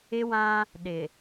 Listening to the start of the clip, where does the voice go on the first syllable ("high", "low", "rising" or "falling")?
high